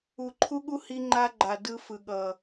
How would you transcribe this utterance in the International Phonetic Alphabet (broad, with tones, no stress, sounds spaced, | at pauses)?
u˨ ǃʰ u˦ ɠ u˦ h i˦ ŋ͡ǃ a˦ ɡ͡ǃ a˨ d ɯ˦ f ɯ˨ ɠ ʌ˨